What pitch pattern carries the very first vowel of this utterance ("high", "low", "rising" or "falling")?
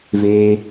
high